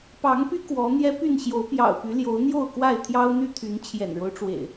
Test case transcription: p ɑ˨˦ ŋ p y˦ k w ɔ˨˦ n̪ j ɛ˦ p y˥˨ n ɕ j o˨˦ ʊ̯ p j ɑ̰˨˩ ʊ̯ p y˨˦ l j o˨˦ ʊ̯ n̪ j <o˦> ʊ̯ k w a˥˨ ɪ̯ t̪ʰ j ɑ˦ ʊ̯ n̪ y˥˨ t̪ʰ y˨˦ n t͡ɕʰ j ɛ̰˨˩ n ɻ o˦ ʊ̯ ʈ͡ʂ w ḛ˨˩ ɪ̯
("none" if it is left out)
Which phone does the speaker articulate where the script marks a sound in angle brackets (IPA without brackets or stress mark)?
o˥˨